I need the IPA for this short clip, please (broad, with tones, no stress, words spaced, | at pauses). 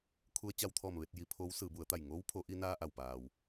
kʰu˧ə̯t͡ɕa˧wt̪ʰɔː˧˩m ʋe˥˨t̚ji˩˧ pʰoː˧˥wsɯː˩˧bu˩˧ə̯t̪a˧˩j ŋoː˧˥wpʰo˩˧ʔi˧ naː˧ ʔa˩wpaː˩w